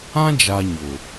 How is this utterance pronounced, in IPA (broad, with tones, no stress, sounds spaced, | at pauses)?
ã˦ d͡ʒ a˨ ɲ ʊ˨